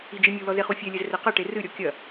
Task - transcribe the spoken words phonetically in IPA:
i d͡ʒ i mʲ u l ɔ z e χ u fʲ ɛ lʲ ɛ z r ɘ q ɐ ʈ e r ɨ ɾʲ ɔ kʲ ɐ

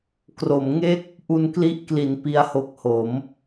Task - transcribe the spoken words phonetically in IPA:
k r o˩˦ m ŋ e˥˩ k̚ | ʔ u˧ n k l i˦˥ ʔ k l i˩˦ n p i˦˥ a̯ h o˦˥ k̚ h o˩˦ m

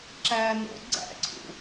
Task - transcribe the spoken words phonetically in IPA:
ǁ æ n o̰ ɡ͡ǀ æ̰ ǀʰ ṵ

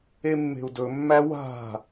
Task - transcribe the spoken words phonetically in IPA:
e mː e̤ u̯ d ɵ mː æ w a̤

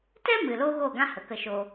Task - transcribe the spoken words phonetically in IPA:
t ɛ˦ m ɨ˨ l oː˦ ɣ o˦˨ ɡ ã˦ h ə˨ k ə˧ ʃ o˧

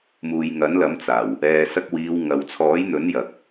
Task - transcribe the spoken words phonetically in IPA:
m uː˨ j ŋ ɐ˨˥ n l ɐ˨˥ m t͡s aː˨˩ w | ɛː˨ s ɐ˧ k̚ w iː˨˧ w ŋ ɐ˨ w t͡sʰ ɔː˨˥ j n̪ ɵ˨˥ n j ɐ˨ k̚

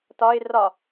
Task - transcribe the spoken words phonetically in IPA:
t ɒ ɪ̯ r ɒ

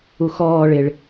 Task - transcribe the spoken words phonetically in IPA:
u x ɔː ɭ ɪ ɭ

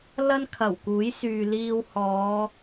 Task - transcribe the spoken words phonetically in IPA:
l ɐ˥ n kʰ ɐ˨˩ w k uː˨˥ j s yː˨ l iː˧ w h ɔː˨˧

